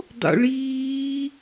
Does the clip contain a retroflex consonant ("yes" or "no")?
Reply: yes